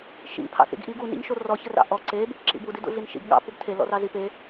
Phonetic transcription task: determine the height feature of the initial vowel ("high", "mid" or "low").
high